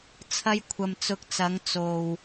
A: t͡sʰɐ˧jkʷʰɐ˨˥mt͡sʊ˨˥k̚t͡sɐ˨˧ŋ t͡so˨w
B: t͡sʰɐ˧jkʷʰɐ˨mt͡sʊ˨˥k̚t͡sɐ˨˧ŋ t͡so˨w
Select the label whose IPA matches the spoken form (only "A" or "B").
B